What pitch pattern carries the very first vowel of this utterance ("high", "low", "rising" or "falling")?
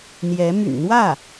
rising